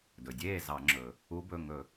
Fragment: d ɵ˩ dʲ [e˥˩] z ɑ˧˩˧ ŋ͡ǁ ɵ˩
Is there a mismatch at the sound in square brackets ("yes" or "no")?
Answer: yes